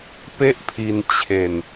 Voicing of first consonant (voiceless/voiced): voiceless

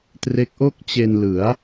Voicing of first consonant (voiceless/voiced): voiceless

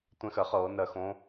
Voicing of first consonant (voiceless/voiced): voiceless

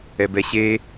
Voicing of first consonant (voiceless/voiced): voiced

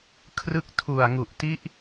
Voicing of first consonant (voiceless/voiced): voiceless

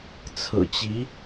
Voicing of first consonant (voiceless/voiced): voiceless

